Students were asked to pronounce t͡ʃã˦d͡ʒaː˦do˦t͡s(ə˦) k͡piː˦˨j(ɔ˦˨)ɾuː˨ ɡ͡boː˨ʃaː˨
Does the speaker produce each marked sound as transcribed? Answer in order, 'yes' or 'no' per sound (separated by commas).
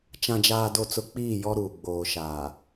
no, no